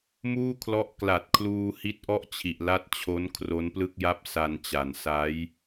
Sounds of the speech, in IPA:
muː˥˩kʰlɔ˦˥ʔ kla˨˩t̚ kʰluː˧hi˦˥t̚ʔɔ˥˩ʔt͡ɕʰi˨˩ʔ la˦˥t̚t͡ɕʰo˦˥n kʰro˦˥nplɯ˥˩k̚ja˥˩p̚ sa˧nt͡ɕa˨˩n sa˦˥j

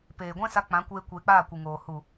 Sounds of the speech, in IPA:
peː˨ɡʷɛ̃˦ sa˧k͡pã˨˦kʷeː˧ kʷeː˧k͡paː˦˨kʷɨ˨ŋoː˨ hu˨

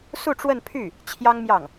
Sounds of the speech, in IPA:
su˥˧ʈ͡ʂwə˥˧npʰy˥˩ | t͡ɕʰjɑ˥ŋmjɑ˥˩ŋ

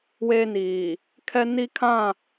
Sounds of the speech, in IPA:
weː˦niː˨ | kʰɛ˦ni˦kʰã˦˨

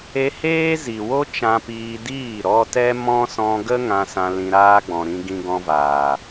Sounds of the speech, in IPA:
e˧heː˦zi˨wo˦ t͡ʃã˧piː˧diː˦˨ ɾɔ˧tɛ˦mɔ̃˦ sɔ̃˧ɡə˦ ŋã˧sã˧ lĩ˧ɾaː˦ ɡ͡bɔ̃˨ɾĩ˧ ɡĩ˧ɡɔ̃˧vaː˨

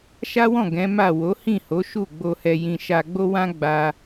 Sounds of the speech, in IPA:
ʃa˦wɔ̃˦˨ ɡɛ̃˨˦ ma˦˨ wo˨˦hĩ˦˨ho˨˦ ʃu˦˨ɡ͡bo˧hɛ˧ jĩ˧ ʃa˧ɡ͡bo˦wã˦ ɡ͡ba˧

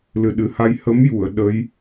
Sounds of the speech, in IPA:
lɨ˨˩ɗɨ˨˩ha˧j hə˧˥mju˨˩˨ə̯ ɗə˧˥j

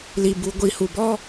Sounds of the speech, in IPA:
li˨bu˨ɡʷi˨ hu˨bɔ˦

